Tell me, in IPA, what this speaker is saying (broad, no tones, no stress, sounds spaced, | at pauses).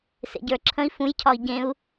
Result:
s ḛ ɟ ə˞ ǁʰ ə̃ i̯ f ũ j cʰ ɒ i̯ ɟ ẽ u̯